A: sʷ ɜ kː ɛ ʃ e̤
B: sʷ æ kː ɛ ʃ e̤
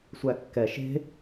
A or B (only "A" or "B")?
B